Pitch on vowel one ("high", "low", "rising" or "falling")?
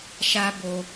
high